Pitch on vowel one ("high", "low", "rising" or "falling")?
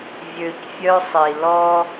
low